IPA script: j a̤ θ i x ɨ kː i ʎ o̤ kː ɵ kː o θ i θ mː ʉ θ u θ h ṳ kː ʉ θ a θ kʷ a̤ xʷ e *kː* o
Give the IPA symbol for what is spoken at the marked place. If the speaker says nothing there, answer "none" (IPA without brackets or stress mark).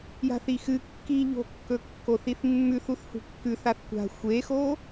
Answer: x